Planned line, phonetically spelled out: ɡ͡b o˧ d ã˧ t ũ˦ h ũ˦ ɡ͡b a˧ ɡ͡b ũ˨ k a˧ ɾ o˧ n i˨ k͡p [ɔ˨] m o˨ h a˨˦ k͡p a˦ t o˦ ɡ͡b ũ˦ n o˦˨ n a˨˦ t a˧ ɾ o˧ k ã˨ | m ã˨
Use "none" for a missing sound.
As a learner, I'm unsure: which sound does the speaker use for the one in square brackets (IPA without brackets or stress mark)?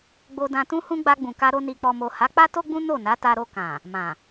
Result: ɔ˨